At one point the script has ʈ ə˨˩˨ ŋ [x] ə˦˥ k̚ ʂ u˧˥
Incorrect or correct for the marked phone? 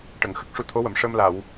correct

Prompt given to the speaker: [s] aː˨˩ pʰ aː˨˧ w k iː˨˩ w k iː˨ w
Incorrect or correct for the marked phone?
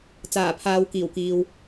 incorrect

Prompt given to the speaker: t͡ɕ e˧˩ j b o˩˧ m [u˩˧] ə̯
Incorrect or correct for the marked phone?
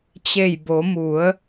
correct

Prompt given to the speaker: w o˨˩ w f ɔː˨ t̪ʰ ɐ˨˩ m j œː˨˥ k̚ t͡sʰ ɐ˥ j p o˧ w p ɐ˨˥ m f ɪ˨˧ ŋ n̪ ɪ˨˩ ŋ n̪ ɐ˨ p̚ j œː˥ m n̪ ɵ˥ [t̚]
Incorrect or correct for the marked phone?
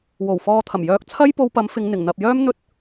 correct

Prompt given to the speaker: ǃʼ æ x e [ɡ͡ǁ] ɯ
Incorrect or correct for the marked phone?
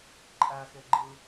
incorrect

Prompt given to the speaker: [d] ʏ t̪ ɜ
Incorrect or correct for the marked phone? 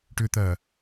incorrect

